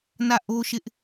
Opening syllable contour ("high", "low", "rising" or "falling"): falling